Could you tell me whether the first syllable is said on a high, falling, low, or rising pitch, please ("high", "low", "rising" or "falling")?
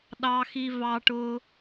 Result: high